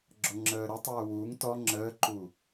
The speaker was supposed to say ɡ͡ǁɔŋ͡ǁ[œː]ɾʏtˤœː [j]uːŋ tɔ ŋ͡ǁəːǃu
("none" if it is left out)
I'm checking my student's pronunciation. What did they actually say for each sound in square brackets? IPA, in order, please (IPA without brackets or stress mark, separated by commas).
əː, w